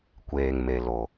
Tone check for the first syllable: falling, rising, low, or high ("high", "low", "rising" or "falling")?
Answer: low